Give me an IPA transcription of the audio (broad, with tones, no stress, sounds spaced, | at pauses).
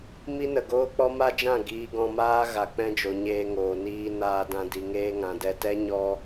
m i˦ n ə˨ ɡ oː˦ k͡p ɔ˦ m a˦ d͡ʒ ã˦˨ ɡ iː˧ ɡ ɔ̃˧ m aː˦ ɣ a˨ k͡p ɛ̃˧ d͡ʒ o˨ ɲ eː˧ ŋ oː˨ n iː˧ n aː˧ d ã˧ d i˨ ŋ eː˧ ŋ ã˨ d ɛ˧ t ɛ˦ ɲ ɔ˦